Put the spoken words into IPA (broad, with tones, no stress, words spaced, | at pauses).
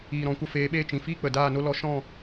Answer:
iː˨ɾɔ̃˨kʷə˧feː˨˦ ɓeː˧t͡ʃĩ˨fiː˦ k͡pə˨daː˦˨no˦ lɔ˧ʃɔ̃˦˨